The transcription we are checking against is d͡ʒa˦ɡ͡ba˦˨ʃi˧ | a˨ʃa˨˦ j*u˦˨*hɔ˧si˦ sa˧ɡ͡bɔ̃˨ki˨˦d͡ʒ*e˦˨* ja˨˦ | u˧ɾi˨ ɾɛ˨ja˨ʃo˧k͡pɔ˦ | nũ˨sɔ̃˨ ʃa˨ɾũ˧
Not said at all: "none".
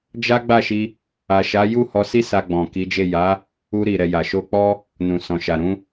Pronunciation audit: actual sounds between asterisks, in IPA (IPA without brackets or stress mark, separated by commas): u˦˨, e˦˨